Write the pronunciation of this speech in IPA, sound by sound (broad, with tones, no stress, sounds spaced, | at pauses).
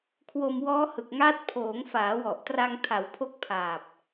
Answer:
kʰ w o˧ m w ɔː˦˥ h ɯ˨˩ k̚ ŋ aː˦˥ t̚ pʰ oː˩˦ ŋ f aː˩˦ w ɔ˨˩ ʔ t r a˧ ŋ tʰ a˩˦ w pʰ o˦˥ k̚ pʰ aː˨˩ p̚